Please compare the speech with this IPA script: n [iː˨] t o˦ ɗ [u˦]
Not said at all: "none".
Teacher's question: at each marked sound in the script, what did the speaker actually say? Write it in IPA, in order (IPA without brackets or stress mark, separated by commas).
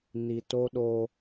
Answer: i˨, o˦